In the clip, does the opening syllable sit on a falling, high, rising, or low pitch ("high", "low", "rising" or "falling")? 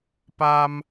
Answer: high